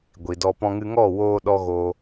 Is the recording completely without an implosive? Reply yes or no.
no